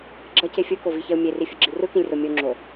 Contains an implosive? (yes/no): no